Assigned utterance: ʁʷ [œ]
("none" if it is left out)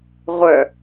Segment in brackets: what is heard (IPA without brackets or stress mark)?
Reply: œ